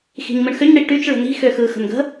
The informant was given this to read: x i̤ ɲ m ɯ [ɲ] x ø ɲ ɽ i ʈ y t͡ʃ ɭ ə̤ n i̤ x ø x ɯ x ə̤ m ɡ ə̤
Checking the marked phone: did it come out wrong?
yes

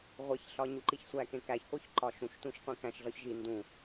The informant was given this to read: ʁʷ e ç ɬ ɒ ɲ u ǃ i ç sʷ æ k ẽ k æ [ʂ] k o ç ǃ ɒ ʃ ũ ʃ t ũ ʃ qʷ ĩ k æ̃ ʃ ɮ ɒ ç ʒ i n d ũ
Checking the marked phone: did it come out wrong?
yes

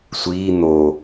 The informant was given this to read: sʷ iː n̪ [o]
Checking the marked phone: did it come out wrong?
no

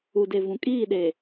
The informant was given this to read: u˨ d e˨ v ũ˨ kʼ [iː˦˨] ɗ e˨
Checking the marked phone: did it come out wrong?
no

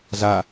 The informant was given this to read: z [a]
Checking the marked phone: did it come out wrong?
no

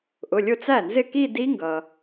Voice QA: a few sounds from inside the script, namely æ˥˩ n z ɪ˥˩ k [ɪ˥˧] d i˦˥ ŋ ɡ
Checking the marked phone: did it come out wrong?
yes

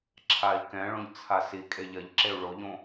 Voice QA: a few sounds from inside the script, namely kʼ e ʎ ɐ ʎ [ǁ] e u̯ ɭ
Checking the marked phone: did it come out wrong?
no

